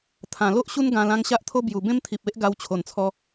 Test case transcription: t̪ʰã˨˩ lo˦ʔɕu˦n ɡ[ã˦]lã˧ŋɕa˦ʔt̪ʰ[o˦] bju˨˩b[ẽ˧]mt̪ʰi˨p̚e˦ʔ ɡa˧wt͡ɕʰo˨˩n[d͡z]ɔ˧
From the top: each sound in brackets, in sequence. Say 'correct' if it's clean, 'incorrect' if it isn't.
incorrect: ã˧, correct, incorrect: ẽ˦, incorrect: t͡sʰ

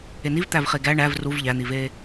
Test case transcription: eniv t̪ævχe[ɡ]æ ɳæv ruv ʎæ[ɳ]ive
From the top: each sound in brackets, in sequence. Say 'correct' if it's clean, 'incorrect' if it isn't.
correct, incorrect: n̪

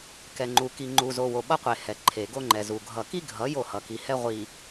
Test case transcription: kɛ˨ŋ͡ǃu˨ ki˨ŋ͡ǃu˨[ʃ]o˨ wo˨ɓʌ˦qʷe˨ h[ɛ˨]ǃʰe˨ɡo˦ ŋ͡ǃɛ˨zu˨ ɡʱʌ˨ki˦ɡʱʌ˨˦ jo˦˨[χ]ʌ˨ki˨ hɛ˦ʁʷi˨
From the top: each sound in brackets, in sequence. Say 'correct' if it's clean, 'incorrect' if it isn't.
incorrect: z, correct, incorrect: h

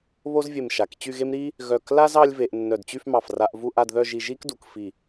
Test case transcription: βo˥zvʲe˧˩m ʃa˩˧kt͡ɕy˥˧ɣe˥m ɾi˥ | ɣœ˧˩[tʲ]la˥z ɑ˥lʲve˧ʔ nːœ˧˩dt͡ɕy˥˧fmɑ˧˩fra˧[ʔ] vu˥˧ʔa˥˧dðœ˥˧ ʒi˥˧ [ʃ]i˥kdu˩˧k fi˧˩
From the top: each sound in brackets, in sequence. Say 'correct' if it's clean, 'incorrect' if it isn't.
incorrect: k, correct, incorrect: ʒ

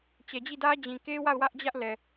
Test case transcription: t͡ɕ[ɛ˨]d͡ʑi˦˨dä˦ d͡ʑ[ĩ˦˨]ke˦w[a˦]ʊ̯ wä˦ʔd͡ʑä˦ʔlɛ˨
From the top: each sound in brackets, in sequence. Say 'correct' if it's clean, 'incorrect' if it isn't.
correct, incorrect: ĩ˨, incorrect: a˦˨

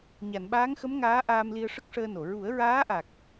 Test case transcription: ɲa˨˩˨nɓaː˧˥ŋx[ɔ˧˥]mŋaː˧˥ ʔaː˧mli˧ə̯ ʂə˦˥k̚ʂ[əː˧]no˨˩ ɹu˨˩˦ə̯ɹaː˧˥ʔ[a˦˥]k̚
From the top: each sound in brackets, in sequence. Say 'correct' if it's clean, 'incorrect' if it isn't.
incorrect: ə˧˥, correct, incorrect: a˨˩

